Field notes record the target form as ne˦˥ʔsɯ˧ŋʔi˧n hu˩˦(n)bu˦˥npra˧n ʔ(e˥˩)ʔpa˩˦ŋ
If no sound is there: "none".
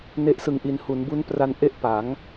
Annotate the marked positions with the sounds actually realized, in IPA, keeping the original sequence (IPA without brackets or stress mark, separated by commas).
n, e˥˩